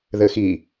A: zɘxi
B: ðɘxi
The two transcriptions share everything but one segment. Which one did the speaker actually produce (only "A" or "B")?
B